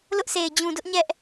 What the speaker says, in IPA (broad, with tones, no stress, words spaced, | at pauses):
lʊ˦ʔsʰe˨ɪ̯ d͡ʑũ˨dʊ˦ʔ ɲɛ˦ʔ